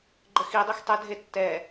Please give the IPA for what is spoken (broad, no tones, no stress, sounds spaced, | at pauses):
ɡ͡ǃ ə x i dˤ i x tˤ ə dʱ e tː ɛ